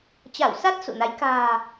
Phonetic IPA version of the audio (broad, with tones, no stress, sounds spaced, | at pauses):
t͡ɕ a˧˩ w s a˦˥ t̚ s ṵ˧˨ n a˨˦ j k a̤ː˨˩